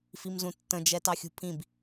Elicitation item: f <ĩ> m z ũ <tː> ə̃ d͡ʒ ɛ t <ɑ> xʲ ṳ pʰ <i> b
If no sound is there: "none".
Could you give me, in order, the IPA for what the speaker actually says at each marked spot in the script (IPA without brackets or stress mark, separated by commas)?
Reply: i, tː, ɑ, ĩ